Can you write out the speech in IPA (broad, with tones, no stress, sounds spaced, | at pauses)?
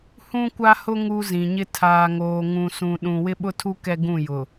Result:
h ũ˦ kʷ a˦ h ʊ˦ ŋ u˦ z ĩ˨ ɲ ɪ˦ tʰ aː˨ ŋ oː˨ ŋ ũ˨ s ũ˨ ɗ ũ˨ w ɪ˦ ɓ ʊ˦ tʰ u˦ k ɛ˦ ɡ ũ˦˨ j ʊ˨